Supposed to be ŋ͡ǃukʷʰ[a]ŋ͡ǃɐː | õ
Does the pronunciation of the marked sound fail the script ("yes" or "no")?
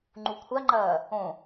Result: no